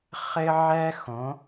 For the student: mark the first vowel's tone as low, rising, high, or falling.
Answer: high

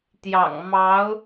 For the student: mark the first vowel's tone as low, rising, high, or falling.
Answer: low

